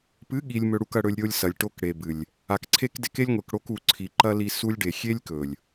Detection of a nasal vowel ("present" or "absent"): absent